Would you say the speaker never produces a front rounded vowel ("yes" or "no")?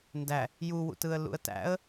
yes